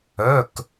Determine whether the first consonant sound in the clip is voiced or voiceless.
voiceless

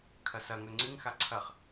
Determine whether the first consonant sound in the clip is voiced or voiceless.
voiceless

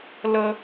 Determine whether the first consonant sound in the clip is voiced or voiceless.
voiced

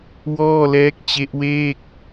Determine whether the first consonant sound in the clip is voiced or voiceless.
voiced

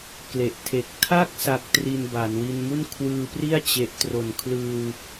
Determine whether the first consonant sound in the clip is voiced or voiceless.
voiceless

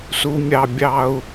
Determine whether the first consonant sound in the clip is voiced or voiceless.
voiceless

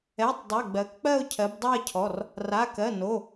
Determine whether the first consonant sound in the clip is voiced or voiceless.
voiceless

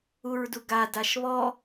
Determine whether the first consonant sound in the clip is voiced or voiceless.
voiced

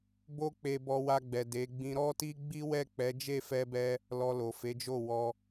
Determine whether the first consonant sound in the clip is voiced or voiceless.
voiced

